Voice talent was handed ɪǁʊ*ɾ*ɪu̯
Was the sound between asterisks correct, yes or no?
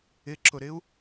yes